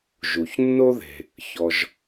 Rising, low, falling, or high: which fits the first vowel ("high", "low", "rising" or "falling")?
low